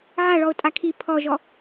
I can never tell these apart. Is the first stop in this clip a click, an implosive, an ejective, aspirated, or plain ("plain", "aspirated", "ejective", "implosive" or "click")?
ejective